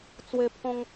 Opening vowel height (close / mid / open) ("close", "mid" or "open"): mid